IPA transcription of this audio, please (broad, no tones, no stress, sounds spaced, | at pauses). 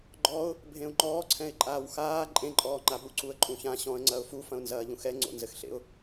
ɡ͡ǃ ɔ ʊ̯ | bʱ ẽ ʊ̯ ŋ͡ǃ ɔː ǀʰ ɛ̃ ɪ̯ ǃʼ aː w x aː ǃʼ ẽ ǃʼ ɔː ŋ͡ǃ a ɓ u ǀ u ə̯ ǃʼ ũ ç ã ɕ ɔ̃ ə̯ ŋ͡ǀ ɐ ʊ̯ f u f ɐ̃ ʊ̯ n z ɐː ʎ ũ x ɛ ŋ͡ǀ o̰ n z ɘ x ɬ ḛ ʊ̯